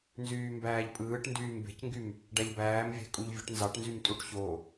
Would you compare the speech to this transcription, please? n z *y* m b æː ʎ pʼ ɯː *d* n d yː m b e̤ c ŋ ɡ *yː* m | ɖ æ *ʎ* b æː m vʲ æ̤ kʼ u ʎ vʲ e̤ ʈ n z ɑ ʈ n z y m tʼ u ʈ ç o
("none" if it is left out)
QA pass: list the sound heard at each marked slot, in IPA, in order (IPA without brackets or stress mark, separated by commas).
yː, ʈ, y, ʎ